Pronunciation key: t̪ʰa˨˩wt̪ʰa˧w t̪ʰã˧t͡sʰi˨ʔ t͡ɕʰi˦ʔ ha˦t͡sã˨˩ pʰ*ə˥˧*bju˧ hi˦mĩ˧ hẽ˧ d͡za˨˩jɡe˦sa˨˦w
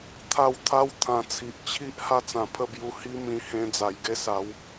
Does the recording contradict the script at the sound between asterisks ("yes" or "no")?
no